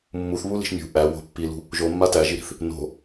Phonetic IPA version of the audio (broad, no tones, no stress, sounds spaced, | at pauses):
mː u θ β u l i̤ ʃ mʲ ṳ ʔ æ w o̤ pː i l ṳ | ʒ o mː a t æ ʒ i ɾ i̤ θ | n o̤